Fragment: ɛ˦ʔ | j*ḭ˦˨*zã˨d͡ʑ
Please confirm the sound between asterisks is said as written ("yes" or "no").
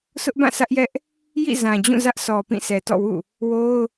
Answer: yes